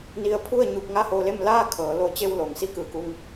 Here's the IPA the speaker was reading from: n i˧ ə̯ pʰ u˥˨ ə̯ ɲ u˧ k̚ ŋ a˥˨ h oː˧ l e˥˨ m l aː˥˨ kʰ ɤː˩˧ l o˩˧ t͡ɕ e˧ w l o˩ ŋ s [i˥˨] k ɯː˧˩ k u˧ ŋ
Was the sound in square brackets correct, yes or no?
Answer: yes